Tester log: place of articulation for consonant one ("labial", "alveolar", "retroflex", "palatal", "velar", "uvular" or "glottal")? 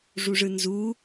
retroflex